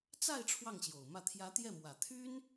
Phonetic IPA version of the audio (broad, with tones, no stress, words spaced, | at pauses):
t͡sa˥˧ɪ̯ ʈ͡ʂʰwɑ˥˩ŋɕjo˨˩ʊ̯mä˥˩ t̪ʰjä˧˥ t̪jɛ˥˩mwä˨˩ t̪ʰy˥n